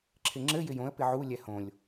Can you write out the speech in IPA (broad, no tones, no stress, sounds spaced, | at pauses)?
ǁʰ ɪ ŋ͡ǁ ɘ j ɪ j õ ə̯ p ɪ ʕ u lʲ ɛ h õ lʲ